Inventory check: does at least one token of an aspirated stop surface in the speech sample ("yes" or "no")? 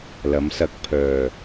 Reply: yes